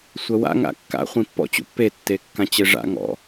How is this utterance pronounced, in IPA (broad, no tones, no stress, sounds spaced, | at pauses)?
sʷ ɜ w a̰ ŋ a̰ kː a̰ χʷ ĩ pː ɔ̰ t͡ɕ ṵ pː e tː e kː ã t͡ɕ e ʐ a̰ ŋ ɔ̰